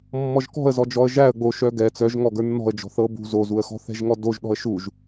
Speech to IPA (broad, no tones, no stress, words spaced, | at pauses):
mːɔʒkɔ̤ə̯zɔd͡ʒɔə̯ ʒæə̯ ɡ͡boʃœ ɡɛ t͡sœʒŋɔ ɡə˞nːɔ̤ə̯ d͡ʒɔ̤θɤ bṳ zozuə̯xɔ̤ θɛ̤ʒŋɔdoʒ ɗɔ̤ə̯ʃuʒ